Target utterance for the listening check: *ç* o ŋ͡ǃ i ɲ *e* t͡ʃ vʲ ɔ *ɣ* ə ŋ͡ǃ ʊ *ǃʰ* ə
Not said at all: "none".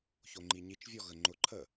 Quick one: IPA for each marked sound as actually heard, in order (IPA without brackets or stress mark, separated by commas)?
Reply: ç, i, ɣ, ǃʰ